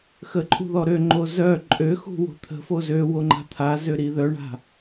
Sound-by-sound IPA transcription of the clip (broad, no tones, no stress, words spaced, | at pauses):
xəǃʼṳ ðɔɾøŋ͡ǃo zœ ǃʼøxṳ wo̤t̪ʰə̤fo zøwo ŋ͡ǃa̤t̪ʰazø ɾiðœɳa̤